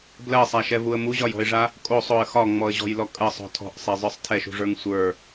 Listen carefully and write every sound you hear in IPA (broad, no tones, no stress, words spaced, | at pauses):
blɜsˤæʃɛvuə̯ muʑɒjɔ̤ɪ̯ʐa | kʼosˤoə̯ xɒŋ͡mɔə̯ʑɔ̤jlɔ kʼɜsˤɔ̤ tʰɔ̤ʔsˤɛzˤə˞sˤ tʰɛʃṳʐə˞ŋ sʷə˞